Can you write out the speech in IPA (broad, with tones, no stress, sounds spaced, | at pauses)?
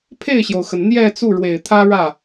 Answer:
pʰ e˥˩ ɪ̯ ɕ j o˩ ʊ̯ x ə˩ n n̪ j ɛ˥˧ t͡s u˥˩ ɻ w e˨˩ ɪ̯ t̪ʰ ä˥ ɻ ä˥˩